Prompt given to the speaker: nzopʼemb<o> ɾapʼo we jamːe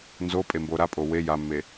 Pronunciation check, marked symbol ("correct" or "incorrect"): correct